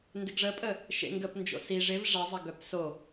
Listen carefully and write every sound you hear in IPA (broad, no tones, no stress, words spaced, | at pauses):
ndɪɡʐəpʼə | ʃḛŋɡəp nd͡ʒo̰si ʐɪv ʐɛzˤɐ ɡœpso